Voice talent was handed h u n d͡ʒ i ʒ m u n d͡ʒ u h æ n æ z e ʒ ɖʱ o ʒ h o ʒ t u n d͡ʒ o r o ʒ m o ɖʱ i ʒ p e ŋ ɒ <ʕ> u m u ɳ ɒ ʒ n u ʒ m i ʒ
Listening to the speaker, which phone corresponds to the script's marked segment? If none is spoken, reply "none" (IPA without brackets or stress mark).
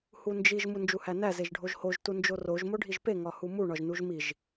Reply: h